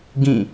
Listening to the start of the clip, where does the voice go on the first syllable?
falling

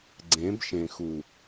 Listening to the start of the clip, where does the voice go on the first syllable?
rising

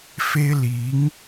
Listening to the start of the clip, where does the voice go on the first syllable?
high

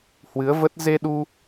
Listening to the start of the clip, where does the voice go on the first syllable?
rising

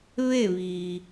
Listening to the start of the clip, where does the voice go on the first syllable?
falling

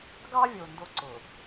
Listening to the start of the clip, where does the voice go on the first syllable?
high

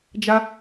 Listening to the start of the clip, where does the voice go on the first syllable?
high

